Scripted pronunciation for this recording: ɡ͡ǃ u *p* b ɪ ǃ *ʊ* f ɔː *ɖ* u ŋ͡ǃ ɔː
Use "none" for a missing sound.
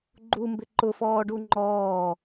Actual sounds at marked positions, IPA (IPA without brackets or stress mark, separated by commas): m, ʊ, ɖ